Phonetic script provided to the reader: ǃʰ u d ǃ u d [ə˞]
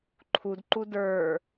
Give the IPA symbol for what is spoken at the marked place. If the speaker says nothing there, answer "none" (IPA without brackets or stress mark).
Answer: ə˞